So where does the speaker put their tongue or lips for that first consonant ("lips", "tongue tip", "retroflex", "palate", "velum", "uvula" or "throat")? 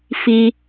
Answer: lips